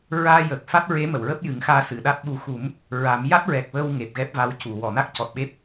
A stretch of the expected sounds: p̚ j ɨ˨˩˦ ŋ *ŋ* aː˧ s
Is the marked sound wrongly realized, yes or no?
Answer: yes